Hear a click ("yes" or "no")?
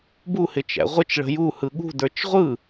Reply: no